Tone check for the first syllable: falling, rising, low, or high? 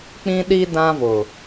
high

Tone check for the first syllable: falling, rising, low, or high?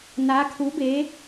rising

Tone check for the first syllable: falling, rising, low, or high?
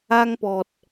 high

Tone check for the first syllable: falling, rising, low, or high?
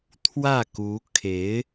falling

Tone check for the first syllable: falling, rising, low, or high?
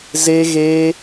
high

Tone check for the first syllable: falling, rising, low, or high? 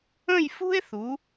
falling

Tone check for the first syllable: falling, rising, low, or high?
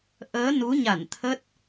rising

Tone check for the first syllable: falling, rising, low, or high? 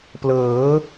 rising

